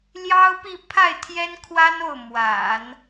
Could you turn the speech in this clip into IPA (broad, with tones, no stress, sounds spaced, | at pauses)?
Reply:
l j ɑ˥ ʊ̯ p i˥˧ pʰ a˥˩ ɪ̯ t̪ʰ j ɛ˥ n kʰ w a˥ n o˥˩ ʊ̯ m w a̰˨˩˦ n